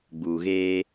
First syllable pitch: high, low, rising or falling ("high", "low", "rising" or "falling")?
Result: low